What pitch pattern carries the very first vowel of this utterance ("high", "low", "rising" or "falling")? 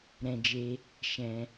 high